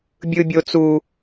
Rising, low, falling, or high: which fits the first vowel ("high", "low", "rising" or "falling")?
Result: high